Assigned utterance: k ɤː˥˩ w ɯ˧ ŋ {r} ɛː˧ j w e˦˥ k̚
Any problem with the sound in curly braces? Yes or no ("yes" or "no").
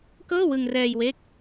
no